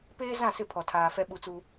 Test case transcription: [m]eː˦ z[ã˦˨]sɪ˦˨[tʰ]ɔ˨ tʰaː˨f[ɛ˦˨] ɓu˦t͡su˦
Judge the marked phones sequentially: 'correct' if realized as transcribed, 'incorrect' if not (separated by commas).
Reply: incorrect, correct, incorrect, incorrect